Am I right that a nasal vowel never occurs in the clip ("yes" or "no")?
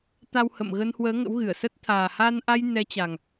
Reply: yes